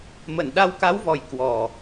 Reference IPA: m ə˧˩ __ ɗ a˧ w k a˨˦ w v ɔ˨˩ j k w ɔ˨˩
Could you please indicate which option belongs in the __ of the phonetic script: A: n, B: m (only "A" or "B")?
A